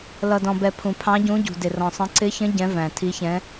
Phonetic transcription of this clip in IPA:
l ʌ˩ d ɔ̃˩ b ɛ˩ pʰ ũ˩ pʰ ɑ̃˨˦ ɟ ũ˨˦ ɟ ṳ˩ d ɪ˩ r ɔ̃˩ sˤ ə̃˨˦ ǀ ɪ˨˦ ç ə̃˨˦ ɟ ɛ̃˨˦ v æ̃˩ tʰ i˨˦ ç ɛ̃˨˦

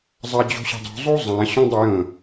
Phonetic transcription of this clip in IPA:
zˤ a d͡ʑ o̤ ɕ ɛ̤ dˤ o̤ zˤ o zˤ ã ɕ ɔ̃ dˤ ə j ə̃

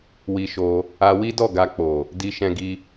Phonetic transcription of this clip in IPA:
w i˧ ʃ o˧ | a˧ w i˦ d ɔ˦˨ ɡ a˧ k͡p o˨ | d i˧ ʃ ɛ̃˧ ɡ i˧

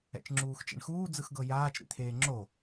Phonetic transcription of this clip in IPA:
ɛ̰ t͡ʃ ŋ͡ǁ uː x t͡ʃ ḛ ɳ x uː d͡z ɯ x ɡ ɤ j aː t͡ʃ ɾ ḭ t̪ʰ eː ŋ͡ǁ o

